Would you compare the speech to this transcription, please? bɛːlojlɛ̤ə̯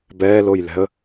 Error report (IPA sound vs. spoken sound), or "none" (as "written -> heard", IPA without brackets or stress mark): none